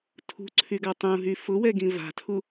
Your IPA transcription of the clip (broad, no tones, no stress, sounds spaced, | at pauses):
tʰ ṳ ǀʰ y ɡ a tˤ ũ ɦ y f ʊ w ɛ ɡ ĩ v a̤ tʰ u